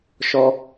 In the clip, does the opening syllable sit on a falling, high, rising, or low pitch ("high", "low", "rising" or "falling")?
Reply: high